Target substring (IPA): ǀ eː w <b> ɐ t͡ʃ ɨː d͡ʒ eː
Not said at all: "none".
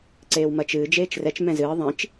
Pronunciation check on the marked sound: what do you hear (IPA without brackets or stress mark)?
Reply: m